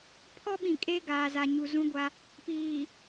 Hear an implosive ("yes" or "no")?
yes